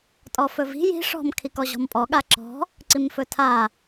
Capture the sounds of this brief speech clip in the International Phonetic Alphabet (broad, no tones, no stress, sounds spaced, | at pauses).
tʼ ɔ f ɵ v i̤ j i̤ ʂ ɔ̤ m kʰ i k ɔ ʑ ɔ̤ m pʼ ɔ ɠ a ǁ ɔ̤ | ǀ i m f ɵ tʰ a